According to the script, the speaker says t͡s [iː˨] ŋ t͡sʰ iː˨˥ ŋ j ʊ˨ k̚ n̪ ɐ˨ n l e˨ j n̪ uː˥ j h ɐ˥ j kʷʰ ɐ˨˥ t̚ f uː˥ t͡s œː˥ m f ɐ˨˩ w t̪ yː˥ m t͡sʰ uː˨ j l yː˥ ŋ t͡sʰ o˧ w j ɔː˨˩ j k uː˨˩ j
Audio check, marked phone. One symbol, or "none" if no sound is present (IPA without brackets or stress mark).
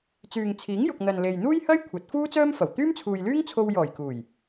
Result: yː˨